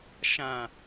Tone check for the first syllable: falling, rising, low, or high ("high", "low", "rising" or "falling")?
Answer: low